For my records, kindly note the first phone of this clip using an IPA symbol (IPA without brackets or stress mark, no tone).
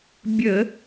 bʲ